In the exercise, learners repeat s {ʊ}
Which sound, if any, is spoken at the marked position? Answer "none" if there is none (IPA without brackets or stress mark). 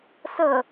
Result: ə